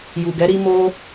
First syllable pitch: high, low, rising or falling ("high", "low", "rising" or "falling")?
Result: low